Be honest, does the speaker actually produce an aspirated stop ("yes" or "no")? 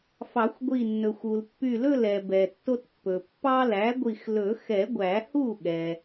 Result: no